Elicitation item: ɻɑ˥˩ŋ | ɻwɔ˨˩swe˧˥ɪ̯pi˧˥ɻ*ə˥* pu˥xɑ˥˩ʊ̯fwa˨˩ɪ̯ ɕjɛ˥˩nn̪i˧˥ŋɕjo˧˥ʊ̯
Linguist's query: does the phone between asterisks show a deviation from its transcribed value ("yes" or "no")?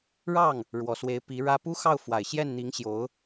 yes